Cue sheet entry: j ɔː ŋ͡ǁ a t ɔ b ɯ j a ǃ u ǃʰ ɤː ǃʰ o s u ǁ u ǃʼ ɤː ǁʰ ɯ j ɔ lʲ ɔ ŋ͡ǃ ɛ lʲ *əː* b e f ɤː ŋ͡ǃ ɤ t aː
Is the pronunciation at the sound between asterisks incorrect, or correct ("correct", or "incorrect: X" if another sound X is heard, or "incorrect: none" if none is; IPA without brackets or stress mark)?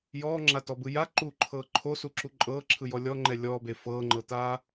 incorrect: ɔː